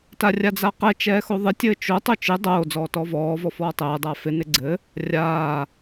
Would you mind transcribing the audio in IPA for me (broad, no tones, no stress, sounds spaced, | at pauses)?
t a rʲ a d͡z a q ɛ t͡ʃ ɛː x o ðˤ ɪ tʲ ɘː t͡ʃ o tˤ o t͡ʃ ɪ dˤ oː d͡z ɔː t ɔː v ɔː v ɔ f ɔː tˤ ɛː dˤ a f ɪ n ɪ ɡ͡ǀ ɘ | rʲ aː